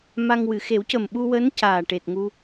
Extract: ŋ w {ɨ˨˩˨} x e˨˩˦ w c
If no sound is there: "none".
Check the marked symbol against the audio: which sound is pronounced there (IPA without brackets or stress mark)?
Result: ɨ˨˩˨